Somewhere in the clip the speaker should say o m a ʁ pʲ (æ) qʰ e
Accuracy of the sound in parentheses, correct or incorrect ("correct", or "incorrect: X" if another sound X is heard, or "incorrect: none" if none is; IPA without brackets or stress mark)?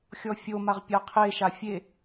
incorrect: a